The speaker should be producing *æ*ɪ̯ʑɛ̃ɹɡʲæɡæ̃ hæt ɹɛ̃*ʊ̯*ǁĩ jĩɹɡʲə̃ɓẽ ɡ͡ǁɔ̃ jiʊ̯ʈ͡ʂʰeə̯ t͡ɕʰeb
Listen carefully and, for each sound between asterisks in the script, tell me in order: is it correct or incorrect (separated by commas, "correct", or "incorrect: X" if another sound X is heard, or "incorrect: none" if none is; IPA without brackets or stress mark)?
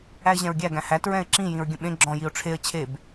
correct, incorrect: ɪ̯